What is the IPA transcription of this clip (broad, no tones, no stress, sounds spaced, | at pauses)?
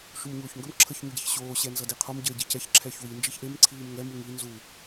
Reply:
ʃ u m ɲ oː ç ŋ ɡ ə m ǁʰ ə ç ɲ u ɟ e ç ɕ oː ɕ ɛ n z ʌ d i qʰ o m ɟ əː ɟ i c ɛ ç ǁʰ ɛ ç w i n d͡ʒ i ç ʔ e m ǀʰ iː m ŋ ɛ m u ŋ i n z u